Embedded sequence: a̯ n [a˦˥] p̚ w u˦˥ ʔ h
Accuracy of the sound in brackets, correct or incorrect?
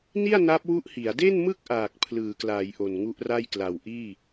correct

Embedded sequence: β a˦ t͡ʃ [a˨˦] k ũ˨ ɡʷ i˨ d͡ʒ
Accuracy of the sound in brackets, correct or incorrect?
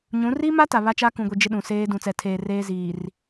incorrect: a˦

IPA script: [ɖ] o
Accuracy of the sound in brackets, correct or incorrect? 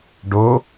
correct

